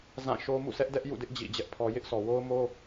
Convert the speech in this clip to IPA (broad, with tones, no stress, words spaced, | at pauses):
zã˦˨ʃo˦ mṵ˦˨sɛ˦ʔ dɛ˦ʔ jṵ˦˨dɪ˦ʔ d͡ʑḭ˦˨d͡ʑɛ˦ʔpʰɔ˦ jɪ˦ʔsɔ˨wo˦ʊ̯mo˦